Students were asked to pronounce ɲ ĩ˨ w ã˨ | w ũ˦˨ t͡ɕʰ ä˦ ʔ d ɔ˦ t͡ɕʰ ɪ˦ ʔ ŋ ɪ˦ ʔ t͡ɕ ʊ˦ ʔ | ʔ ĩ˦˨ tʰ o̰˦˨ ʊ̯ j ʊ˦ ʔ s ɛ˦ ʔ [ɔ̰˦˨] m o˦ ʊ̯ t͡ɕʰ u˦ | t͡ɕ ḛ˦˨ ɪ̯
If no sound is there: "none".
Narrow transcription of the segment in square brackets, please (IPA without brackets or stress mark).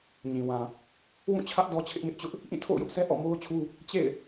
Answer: ɔ̰˦˨